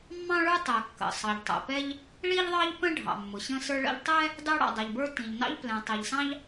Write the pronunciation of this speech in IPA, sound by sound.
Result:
mː ɑ̃˥ ɭ ə˞˥ tˤ ɛ˩ kː ə̰˩ sˤ ɑ˩ ʎ tˤ ə̰˩ p ɛ˥ ʎ | ɭ i˥ ʎ ðˤ ɑ˥ ʎ p ə̃˥ ɖʱ ɑ̰˩ mː ʊ˩ ɕ ə̃˥ s ə˞˥ ɭ ə̰˥ ʎ tˤ ɛ˥ | d ɑ˥ ɽ ɑ̰˩ dˤ ɛ˩ ʎ b ə˞˥ t ĩ˩ ʎ n ɑ̰˥ ʎ p l ɛ̃˩ tˤ i˩ ʎ s ɑ̃˥ ʎ

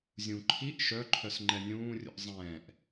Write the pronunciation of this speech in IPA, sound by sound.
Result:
zʲ ũ ǃʰ i ʔ ʃ œ ǃʰ œ s ŋ͡ǃ ɛ nʲ ũː rʲ ṵ ʔ zˤ ɛ̃ː ʔ

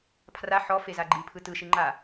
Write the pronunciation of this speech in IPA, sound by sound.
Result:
pʰ r a ħ ɔ f e z a ɡ͡ǃ i pʰ ɯ t ɯ ʃ i ŋ͡ǃ a

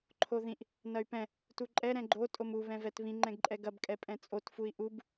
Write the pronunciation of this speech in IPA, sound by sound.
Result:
ǃʰ o ð ĩ ʔ | n ɐ y̯ p ɛ̃ | t u ǃʼ ɛ ɾ ɛ̃ ɡ͡ǃ o tʼ o m u β ɛ̃ v ɛ t β ĩ ŋ͡ǃ ɛ̃ ɡ ǃʼ ɛ ɡ ɐ b kʼ ɛ pʼ ɛ̃ t͡sʼ o t f u i̯ ʔ u b

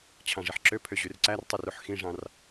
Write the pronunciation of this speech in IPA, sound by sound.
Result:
t͡ɕʰ ɑ̃ ʐ i ħ ǁ ø pʰ ø ʑ y r ǀ æ r tˤ i r u ħ x ĩ ʐ ɑ̃ r

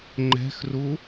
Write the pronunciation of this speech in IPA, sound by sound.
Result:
ŋ͡ǃ ɛ̤ x r u

